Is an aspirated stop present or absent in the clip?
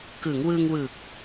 absent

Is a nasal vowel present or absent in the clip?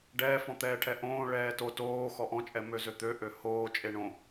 present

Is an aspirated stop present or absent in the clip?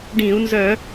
absent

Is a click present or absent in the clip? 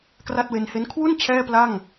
absent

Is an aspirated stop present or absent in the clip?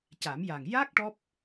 absent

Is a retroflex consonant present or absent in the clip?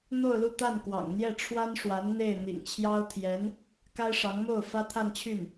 present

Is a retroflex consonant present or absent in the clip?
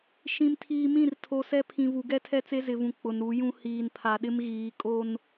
absent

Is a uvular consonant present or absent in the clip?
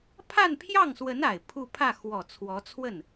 absent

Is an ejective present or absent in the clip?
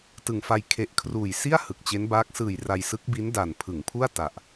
absent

